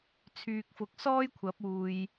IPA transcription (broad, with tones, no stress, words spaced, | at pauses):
t͡sʰyː˨k̚fʊ˨k̚ sɔː˥j kʷʰɐ˨˥p̚uː˨j